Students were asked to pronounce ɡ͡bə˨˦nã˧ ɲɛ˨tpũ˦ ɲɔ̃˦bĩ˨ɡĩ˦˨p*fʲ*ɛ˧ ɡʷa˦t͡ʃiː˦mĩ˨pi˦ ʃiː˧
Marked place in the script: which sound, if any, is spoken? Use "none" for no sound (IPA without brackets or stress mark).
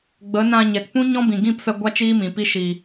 f